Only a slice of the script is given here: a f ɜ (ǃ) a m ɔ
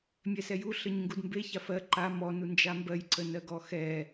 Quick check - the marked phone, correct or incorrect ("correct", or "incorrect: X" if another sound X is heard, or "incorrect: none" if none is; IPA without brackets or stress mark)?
correct